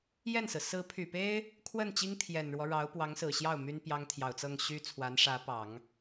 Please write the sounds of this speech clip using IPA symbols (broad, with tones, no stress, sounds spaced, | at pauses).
j ɛ˥˩ n s ɹ̩˩ s ɹ̩˧˥ pʰ y˨˩ p e˥ ɪ̯ | kʰ w ə˥˩ n t͡ɕ i˥ ŋ t̪ʰ j ɛ˨˩ n ɻ w ɔ˦ ɻ ɑ˧˥ ʊ̯ p w ɑ˧˥ ŋ s ɹ̩˨˩ ɕ j ɑ˥˩ ʊ̯ m y˥ n p j ɑ˥ ŋ t̪ʰ j ɑ˨˩ ʊ̯ t͡s ɤ˥˩ ŋ ɕ y˥ t͡sʰ w a˧˥ n ʂ ä˧˥ p ɑ˨˩˦ ŋ